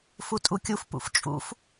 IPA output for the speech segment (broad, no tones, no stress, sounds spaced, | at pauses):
f u tʼ u kʲ u f p ṵ f t͡ʃʼ ṵ f